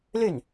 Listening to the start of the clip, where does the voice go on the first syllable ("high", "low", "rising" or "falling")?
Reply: falling